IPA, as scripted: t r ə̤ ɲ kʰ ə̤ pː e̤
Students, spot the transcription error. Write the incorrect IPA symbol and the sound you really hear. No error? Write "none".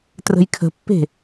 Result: ɲ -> j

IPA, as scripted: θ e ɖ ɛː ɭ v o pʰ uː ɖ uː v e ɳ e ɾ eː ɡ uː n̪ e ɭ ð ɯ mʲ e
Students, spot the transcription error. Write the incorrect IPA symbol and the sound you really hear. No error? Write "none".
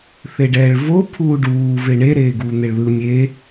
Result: none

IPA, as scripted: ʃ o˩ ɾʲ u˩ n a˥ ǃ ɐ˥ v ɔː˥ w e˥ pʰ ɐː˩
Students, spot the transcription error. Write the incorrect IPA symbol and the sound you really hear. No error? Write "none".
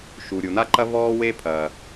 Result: o˩ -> u˩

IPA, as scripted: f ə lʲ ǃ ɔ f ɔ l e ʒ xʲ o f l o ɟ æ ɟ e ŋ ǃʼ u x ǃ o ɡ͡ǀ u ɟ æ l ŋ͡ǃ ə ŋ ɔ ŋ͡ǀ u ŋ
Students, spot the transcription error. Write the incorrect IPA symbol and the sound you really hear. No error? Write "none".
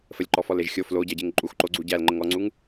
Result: none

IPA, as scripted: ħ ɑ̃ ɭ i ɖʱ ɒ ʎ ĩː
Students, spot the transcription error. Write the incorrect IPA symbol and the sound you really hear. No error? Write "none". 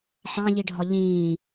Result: ɭ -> ʎ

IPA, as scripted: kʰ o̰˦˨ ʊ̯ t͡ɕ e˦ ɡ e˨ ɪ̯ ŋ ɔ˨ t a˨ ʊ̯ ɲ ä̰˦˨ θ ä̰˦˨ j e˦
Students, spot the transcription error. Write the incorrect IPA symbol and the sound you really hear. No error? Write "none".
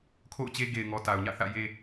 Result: none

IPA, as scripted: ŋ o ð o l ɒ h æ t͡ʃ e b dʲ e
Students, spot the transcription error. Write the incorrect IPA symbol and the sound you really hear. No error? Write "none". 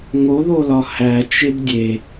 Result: none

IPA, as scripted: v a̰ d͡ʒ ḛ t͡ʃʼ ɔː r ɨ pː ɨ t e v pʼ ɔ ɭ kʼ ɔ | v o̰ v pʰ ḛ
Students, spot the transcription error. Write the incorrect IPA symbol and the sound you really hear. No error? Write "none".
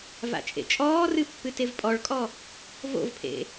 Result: d͡ʒ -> t͡ʃʼ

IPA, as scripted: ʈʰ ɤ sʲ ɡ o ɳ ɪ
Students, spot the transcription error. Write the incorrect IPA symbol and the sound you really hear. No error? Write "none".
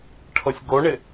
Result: none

